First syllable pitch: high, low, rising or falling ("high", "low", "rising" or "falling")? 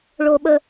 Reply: high